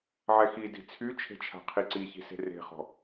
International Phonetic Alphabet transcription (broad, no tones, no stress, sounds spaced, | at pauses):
ʕ ɛ x i d i̤ t͡sʰ y t͡ʃʰ e̤ t͡ʃʰ a̤ qʰ i ǀ i ç i̤ s e̤ r e̤ χ ɔ̤